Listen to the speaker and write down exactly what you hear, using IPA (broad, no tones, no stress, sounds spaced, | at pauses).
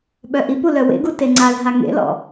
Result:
ɓ œ ʔ i p u l œ w ḛ ɡ u t e ŋ͡ǀ a l ɦ a ŋ ḛ l ɔ̰